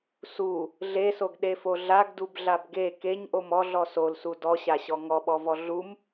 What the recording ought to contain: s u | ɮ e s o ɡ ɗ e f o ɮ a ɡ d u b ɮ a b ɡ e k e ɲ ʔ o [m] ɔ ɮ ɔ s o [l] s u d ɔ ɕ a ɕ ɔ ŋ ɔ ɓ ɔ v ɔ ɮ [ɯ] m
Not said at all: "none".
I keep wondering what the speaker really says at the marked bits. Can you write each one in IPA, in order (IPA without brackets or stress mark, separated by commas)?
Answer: m, l, u